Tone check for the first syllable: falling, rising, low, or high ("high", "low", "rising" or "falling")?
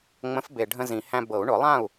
rising